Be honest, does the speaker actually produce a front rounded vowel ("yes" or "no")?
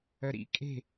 yes